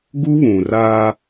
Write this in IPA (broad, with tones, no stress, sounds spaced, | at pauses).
ɡ u˦ β ũ˨ r a˦